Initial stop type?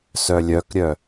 plain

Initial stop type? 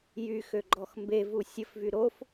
click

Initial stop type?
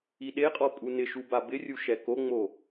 implosive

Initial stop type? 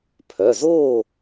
aspirated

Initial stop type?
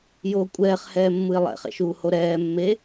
ejective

